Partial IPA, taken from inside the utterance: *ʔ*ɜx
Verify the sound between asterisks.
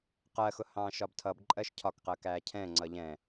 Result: incorrect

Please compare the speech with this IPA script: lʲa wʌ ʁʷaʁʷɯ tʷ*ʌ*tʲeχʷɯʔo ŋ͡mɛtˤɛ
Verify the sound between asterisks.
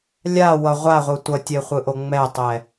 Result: correct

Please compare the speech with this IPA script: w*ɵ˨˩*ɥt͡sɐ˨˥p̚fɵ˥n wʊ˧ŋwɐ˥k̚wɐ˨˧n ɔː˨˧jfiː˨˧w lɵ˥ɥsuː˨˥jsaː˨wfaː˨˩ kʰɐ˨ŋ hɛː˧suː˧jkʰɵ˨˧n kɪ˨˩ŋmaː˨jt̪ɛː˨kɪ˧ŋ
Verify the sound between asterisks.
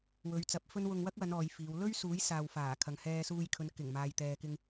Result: incorrect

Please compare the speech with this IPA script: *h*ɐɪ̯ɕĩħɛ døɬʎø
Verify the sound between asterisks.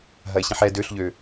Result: incorrect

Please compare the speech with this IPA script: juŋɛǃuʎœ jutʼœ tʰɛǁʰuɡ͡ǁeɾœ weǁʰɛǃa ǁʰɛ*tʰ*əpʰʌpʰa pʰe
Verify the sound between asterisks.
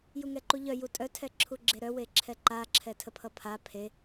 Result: correct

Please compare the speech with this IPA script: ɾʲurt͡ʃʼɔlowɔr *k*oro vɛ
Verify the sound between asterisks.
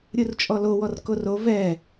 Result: correct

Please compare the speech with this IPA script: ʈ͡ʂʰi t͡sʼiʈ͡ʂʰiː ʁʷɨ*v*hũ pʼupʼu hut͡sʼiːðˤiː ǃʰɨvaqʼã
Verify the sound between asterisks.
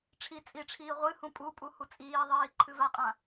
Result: incorrect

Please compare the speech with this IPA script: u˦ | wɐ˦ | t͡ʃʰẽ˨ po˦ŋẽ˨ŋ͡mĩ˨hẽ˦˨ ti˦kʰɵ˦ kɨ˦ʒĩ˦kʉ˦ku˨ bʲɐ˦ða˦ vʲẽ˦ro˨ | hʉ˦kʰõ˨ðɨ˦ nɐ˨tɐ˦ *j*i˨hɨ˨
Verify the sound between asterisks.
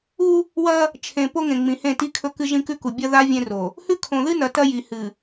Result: correct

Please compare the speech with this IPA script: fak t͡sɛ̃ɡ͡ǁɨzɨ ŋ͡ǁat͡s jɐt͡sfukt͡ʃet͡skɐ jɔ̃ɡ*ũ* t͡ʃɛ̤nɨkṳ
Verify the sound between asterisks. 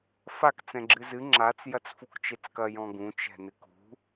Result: correct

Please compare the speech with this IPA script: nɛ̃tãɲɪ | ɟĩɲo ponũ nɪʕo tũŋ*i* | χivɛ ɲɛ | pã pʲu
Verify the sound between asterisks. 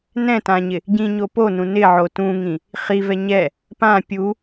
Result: incorrect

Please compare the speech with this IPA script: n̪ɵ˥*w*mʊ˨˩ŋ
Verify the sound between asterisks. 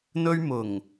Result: incorrect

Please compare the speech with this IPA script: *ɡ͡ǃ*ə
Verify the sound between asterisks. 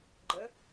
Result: correct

